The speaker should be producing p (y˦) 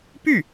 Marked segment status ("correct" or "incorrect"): incorrect